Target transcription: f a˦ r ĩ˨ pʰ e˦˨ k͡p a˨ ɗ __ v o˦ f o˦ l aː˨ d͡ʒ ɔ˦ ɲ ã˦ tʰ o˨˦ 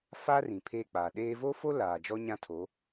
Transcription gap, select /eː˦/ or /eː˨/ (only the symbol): eː˦